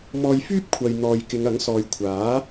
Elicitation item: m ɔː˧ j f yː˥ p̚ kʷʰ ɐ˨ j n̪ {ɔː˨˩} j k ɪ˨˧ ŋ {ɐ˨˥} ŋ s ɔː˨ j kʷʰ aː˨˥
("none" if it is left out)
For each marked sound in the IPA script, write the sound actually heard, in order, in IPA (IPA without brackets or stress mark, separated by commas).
ɔː˨, ɐ˨˥